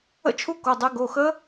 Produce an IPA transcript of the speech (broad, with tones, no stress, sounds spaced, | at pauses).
ə̰˥˨ t͡ʃʰ u˦˥ k o˧˥˧ dˤ ɛ˦˥ ɡ o˧˥˧ x ə˦˥